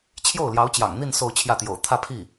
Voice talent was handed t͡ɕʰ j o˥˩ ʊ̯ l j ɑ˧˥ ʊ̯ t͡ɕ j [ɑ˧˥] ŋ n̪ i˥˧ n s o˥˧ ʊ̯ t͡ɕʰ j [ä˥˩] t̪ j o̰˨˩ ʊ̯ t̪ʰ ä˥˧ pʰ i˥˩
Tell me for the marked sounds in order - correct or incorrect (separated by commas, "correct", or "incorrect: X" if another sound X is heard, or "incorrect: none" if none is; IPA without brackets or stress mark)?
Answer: incorrect: ɑ̰˨˩, correct